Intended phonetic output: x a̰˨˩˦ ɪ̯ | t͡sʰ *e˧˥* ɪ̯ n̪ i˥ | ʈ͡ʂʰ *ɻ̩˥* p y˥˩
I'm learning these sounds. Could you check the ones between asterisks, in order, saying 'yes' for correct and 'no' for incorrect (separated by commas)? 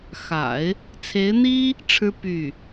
yes, yes